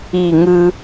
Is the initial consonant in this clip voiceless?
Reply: no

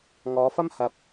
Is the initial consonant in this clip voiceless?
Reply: no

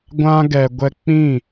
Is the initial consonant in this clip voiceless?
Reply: no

